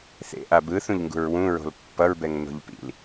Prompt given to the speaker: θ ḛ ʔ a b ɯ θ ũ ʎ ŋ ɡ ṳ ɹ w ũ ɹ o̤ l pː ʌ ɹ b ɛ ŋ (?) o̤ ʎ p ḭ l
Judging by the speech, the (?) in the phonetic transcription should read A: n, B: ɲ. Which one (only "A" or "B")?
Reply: A